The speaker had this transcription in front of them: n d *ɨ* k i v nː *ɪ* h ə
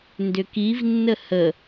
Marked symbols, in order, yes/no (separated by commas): no, no